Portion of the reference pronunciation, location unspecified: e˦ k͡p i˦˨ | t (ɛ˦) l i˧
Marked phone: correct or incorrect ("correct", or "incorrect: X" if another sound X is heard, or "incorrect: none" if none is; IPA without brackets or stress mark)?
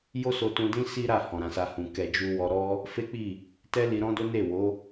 correct